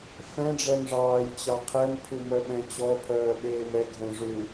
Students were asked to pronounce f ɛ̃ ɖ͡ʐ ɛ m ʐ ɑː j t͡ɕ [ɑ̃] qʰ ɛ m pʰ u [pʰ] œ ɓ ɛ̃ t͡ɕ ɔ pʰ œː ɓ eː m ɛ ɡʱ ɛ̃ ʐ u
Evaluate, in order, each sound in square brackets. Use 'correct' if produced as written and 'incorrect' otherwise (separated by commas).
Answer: incorrect, incorrect